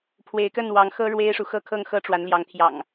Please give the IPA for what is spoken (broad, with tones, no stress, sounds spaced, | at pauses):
pʰ w e˨˦ ɪ̯ k ə˥˨ n w ɑ˨˦ ŋ x ɤ˦ ɻ w e˦ ɪ̯ ʂ u˨ x ɤ˥˨ kʰ ɤ˥˨ ŋ x ɤ˦ ʈ͡ʂ w a˨˦ n l j ɑ˨˦ ŋ t̪ʰ j ɑ̰˨˩ ŋ